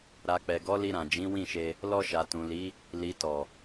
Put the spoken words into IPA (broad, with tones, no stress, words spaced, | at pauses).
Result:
ɾa˨k͡pɛ˨ɡɔ˨˦ li˧ɾã˨ d͡ʒĩ˨˦wĩ˦˨ʃe˧ | lɔ˧ʃa˨tũ˨li˨˦ | li˨tɔ˨